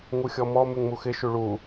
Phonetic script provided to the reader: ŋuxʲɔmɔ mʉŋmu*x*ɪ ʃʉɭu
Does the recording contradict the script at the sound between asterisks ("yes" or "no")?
no